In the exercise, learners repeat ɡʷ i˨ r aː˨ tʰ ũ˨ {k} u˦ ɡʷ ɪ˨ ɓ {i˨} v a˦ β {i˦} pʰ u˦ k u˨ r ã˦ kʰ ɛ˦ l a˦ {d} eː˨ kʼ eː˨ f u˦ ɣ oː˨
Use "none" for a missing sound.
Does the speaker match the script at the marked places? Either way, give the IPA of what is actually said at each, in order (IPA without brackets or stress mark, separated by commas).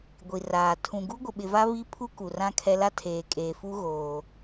ɡ, ɪ˨, i˦, tʰ